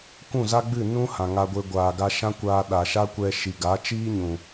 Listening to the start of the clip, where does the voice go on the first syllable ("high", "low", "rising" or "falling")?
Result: falling